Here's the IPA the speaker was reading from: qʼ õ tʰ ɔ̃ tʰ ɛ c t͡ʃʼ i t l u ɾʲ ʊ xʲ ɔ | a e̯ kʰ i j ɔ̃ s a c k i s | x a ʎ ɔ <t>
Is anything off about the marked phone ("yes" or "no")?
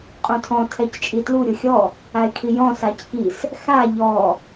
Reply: yes